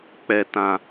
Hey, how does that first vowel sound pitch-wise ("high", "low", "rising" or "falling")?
low